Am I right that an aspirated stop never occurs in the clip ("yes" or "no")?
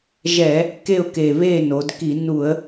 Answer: yes